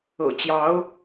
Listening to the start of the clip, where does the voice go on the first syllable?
low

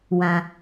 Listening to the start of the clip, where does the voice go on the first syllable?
low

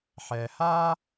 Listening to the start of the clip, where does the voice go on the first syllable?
low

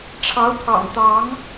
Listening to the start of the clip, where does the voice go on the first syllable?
rising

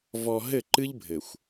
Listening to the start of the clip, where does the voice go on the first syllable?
low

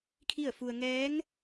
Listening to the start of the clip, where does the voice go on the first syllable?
falling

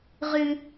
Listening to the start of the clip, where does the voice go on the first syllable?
high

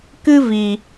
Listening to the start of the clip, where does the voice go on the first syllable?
high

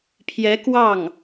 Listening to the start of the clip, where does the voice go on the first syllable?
rising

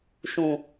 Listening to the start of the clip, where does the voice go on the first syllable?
low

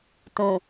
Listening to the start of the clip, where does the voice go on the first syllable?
low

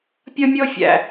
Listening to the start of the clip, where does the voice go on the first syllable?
high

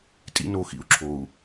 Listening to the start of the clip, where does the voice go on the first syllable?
high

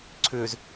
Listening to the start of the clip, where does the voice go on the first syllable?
low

